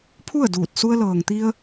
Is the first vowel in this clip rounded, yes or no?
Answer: yes